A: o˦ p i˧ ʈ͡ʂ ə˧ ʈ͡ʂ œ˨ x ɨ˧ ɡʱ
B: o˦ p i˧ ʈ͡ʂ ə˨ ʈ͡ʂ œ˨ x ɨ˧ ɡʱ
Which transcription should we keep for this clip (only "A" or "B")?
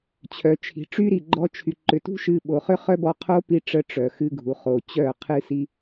A